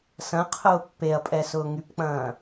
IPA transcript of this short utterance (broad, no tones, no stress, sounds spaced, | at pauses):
s ɐ̃ qʰ ʊː pː e ɐ̯ pʼ ɛ s ʊː ŋ y p k͡p ɐ̃ː